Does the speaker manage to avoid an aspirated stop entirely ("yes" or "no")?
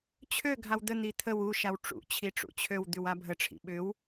no